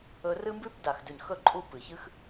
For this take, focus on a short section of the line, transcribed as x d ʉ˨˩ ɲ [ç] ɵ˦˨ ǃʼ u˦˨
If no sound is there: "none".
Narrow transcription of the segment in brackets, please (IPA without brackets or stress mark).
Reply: x